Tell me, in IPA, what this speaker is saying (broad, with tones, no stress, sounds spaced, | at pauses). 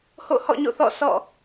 h o̰˦˨ h ɔ̰˦˨ ɲ o̰˦˨ θ ɔ̰˦˨ sʰ ɔ̰˦˨